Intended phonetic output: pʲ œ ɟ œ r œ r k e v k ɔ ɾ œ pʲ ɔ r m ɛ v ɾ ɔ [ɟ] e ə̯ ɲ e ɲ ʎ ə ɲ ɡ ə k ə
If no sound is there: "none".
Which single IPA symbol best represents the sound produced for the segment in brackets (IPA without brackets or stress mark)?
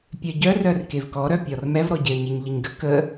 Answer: ɟ